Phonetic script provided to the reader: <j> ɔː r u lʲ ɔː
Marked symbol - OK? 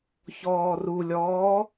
no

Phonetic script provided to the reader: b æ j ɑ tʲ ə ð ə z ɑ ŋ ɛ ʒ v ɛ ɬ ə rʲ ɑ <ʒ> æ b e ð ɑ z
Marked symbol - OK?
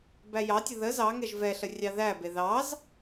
no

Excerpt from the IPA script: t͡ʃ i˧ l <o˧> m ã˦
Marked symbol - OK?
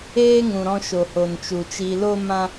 no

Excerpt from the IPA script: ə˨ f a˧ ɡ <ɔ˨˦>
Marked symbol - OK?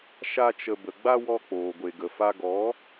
yes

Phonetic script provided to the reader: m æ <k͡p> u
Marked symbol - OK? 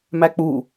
yes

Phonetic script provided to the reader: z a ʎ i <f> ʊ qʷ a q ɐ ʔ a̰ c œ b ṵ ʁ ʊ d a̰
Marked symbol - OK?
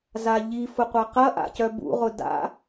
yes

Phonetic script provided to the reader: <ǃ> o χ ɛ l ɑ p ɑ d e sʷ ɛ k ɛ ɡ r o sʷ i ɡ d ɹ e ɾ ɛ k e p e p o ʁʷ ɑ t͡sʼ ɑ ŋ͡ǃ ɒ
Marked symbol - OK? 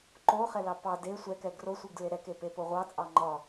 yes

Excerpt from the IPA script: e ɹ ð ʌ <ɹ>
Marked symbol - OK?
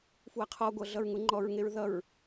yes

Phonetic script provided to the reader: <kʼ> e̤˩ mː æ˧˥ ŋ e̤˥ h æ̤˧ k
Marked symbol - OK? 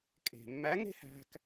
yes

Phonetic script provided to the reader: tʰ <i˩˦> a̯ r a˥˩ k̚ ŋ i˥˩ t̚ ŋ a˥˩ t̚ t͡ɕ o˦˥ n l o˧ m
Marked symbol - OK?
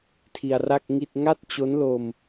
no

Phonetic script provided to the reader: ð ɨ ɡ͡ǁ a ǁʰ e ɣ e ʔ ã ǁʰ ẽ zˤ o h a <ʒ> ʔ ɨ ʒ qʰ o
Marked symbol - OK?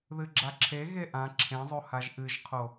yes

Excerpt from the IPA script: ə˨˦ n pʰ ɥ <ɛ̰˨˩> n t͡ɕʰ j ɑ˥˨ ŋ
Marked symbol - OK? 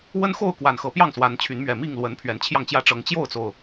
no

